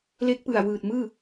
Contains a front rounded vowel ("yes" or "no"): no